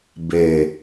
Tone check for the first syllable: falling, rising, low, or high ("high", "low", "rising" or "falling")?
low